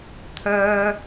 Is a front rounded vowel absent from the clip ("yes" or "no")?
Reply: no